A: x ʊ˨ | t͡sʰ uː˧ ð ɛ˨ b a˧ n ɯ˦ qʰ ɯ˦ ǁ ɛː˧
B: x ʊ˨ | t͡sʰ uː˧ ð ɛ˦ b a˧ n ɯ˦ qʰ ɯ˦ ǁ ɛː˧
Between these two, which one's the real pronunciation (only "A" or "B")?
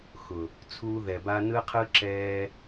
A